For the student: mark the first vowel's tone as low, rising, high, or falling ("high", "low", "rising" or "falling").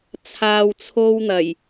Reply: low